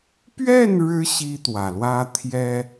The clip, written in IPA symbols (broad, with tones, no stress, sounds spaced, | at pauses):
p ɥ ɛ˥˩ n ɻ ɻ̩˧˥ ɕ i˥ t̪ w ä˨˩ l w ä˥ t̪ʰ j ɛ˥